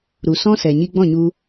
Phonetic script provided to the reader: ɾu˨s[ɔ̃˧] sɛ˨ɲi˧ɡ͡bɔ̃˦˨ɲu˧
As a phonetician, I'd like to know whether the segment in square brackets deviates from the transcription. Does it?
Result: yes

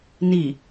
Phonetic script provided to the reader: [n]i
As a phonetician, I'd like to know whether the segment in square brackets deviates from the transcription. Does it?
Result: no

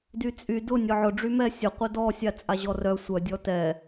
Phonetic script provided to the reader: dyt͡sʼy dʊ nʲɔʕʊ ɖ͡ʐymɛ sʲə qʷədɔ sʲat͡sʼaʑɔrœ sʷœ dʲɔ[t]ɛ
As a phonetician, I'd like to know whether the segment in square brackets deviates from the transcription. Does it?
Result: no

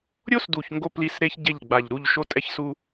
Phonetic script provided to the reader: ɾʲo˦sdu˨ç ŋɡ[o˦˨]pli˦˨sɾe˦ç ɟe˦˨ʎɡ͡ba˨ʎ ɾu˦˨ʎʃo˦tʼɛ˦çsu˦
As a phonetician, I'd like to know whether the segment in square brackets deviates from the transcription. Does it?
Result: no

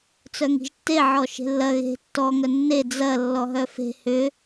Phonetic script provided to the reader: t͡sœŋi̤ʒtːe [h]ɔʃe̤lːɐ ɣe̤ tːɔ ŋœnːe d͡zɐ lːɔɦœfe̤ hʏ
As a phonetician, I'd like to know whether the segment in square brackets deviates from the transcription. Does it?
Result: yes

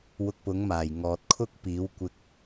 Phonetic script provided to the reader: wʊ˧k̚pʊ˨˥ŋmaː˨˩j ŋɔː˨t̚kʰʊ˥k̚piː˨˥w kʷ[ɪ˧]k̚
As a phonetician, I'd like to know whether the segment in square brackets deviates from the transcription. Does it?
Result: no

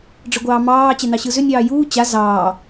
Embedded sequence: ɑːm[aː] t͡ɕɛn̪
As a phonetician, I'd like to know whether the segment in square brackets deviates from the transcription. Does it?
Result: yes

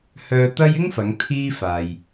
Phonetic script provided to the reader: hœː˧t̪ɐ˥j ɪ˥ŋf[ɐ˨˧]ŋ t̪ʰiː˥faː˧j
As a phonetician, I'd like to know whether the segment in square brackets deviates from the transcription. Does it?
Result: no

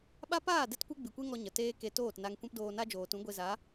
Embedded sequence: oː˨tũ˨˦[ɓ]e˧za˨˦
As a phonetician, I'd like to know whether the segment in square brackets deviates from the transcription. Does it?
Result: yes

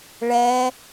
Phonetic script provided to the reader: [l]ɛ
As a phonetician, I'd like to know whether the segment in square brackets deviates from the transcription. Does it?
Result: yes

